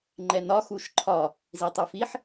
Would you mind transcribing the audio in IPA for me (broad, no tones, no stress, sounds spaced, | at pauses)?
ŋ͡ǃ ɛ n ɒ x u ʃ ǃʰ ɒ | z i tˤ u f i ħ